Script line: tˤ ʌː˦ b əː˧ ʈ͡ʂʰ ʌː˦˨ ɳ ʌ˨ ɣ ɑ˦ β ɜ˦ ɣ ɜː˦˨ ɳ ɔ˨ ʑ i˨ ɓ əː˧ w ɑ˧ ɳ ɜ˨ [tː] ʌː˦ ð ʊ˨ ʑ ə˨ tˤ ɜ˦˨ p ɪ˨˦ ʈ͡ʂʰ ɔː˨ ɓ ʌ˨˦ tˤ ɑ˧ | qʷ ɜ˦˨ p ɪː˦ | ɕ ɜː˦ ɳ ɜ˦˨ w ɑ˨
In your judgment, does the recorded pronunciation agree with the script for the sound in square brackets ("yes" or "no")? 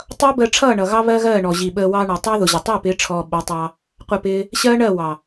no